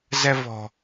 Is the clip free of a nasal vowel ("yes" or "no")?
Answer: yes